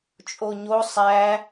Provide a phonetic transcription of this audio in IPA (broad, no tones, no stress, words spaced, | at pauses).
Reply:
t͡ʃʼoɲo sˤæ